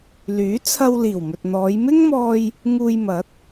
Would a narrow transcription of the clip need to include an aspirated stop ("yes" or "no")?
yes